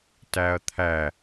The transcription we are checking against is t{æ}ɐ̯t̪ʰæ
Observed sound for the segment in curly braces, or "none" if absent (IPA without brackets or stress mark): æ